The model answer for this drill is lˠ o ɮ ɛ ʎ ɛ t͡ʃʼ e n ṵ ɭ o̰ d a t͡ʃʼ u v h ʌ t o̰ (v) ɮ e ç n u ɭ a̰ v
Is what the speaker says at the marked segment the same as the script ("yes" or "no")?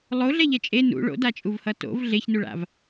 yes